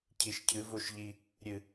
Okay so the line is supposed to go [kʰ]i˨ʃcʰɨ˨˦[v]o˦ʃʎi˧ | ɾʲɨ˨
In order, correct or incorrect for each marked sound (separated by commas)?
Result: incorrect, correct